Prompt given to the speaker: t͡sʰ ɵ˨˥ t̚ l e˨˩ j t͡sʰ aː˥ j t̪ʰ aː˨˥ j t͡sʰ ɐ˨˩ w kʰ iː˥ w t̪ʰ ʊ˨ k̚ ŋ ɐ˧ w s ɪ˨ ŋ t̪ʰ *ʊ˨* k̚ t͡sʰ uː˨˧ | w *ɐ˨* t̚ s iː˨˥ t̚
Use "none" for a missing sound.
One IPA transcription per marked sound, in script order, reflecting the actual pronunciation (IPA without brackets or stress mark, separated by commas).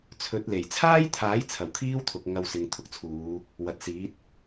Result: ʊ˨˥, ɐ˨